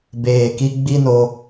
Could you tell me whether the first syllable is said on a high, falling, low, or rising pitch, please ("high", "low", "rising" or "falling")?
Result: low